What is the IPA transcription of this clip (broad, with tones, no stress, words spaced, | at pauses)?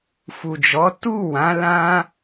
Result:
fu˨d͡ʒɔ˨˦ tu˦˨wã˨˦ lã˦